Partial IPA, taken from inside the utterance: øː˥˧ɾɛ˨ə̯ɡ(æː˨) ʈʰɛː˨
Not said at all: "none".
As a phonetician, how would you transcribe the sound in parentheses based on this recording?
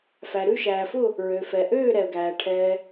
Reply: æː˨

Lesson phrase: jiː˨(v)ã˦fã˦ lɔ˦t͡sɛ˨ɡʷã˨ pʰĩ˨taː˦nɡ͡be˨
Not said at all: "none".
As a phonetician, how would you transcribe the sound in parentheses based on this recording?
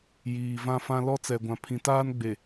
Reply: v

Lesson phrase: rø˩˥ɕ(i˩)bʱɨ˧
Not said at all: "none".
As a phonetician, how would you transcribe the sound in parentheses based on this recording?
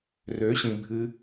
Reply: ĩ˩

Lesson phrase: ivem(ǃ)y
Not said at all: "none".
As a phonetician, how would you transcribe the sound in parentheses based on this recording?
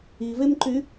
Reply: ǃ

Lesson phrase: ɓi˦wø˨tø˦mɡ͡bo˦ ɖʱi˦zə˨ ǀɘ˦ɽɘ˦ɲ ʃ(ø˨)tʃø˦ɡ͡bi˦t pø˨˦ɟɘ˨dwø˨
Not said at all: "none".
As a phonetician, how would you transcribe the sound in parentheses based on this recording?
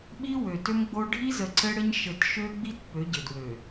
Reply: ɘ˨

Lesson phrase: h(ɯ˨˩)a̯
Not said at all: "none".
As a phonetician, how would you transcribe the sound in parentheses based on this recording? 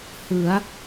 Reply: ɯ˩˦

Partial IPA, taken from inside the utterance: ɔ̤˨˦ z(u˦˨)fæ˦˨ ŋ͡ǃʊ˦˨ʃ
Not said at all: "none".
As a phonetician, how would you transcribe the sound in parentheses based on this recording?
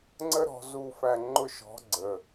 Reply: u˦˨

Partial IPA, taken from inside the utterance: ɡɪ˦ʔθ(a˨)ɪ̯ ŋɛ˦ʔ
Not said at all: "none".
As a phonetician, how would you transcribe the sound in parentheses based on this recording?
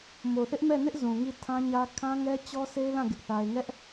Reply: a˦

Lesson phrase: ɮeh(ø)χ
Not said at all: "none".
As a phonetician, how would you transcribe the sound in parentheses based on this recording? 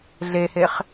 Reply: e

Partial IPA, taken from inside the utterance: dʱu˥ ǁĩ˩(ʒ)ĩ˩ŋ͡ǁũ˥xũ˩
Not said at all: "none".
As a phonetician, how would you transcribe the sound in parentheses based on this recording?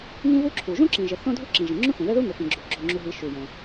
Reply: ʒ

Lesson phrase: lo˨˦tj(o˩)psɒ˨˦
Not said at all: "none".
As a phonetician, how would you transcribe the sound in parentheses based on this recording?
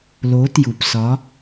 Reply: u˩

